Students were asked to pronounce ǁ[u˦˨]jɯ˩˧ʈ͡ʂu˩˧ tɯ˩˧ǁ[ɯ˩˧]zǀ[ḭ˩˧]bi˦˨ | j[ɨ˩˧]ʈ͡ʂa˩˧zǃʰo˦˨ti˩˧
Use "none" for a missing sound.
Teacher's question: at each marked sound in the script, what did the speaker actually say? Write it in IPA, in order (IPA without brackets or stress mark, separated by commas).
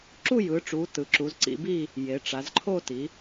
u˦˨, u˩˧, ḭ˩˧, e˩˧